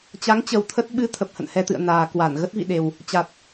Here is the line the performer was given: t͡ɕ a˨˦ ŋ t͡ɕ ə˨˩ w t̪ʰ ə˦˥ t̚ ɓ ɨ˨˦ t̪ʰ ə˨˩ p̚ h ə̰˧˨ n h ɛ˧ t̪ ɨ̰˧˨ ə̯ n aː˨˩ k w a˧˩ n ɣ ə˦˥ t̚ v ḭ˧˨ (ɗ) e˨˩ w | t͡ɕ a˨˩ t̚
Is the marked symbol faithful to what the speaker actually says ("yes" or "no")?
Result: yes